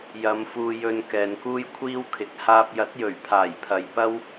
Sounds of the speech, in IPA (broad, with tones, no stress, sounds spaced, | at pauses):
j ɐ˨˧ m f uː˨ j ɵ˨ n k ɛː˨ n k uː˥ j kʷʰ iː˥ w kʰ ɪ˨˥ k̚ h aː˧ p̚ j ɐ˨˥ t̚ j ɵ˨˩ ɥ pʰ aː˨˩ j pʰ ɐ˨ j p ɐ˥ w